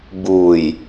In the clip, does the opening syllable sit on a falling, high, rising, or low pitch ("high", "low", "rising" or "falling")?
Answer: low